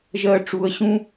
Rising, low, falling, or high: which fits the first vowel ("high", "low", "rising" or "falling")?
low